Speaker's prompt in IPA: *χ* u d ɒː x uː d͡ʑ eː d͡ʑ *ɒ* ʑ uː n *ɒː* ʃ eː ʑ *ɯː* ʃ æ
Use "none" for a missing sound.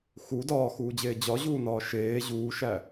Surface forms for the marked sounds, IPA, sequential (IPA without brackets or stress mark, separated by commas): x, ɒ, ɒː, uː